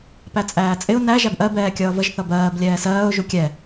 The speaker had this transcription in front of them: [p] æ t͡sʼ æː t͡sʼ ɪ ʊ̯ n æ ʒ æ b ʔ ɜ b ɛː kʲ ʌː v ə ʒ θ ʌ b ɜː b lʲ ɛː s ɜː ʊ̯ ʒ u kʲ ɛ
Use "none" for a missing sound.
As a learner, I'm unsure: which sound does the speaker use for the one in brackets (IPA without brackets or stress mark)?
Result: p